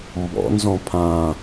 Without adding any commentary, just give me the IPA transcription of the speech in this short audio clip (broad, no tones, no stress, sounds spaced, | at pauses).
m b ɔ̰ n z ɔ̃ pʰ ã